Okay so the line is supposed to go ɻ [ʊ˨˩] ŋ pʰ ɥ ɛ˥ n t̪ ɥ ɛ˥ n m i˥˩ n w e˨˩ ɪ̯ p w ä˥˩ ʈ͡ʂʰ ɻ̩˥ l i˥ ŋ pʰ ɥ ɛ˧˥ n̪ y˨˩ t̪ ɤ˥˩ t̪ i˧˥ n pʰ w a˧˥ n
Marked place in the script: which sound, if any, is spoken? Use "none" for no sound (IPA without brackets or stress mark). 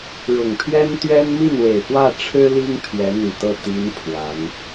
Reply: ʊ˨˩